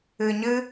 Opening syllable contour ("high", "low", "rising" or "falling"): low